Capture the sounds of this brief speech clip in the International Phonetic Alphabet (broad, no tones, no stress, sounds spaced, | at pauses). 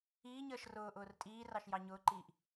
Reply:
iː ɲ əː ʃ r ʊː ʔ ʊː r tʼ iː r ɑ ʃ j ɑ ɲ ʊː ǃ iː ʔ